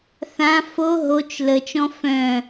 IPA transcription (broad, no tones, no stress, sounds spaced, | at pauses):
θ ã f o ɦ o t͡ʃ l ə t͡ʃ ɔ̃ f œ̃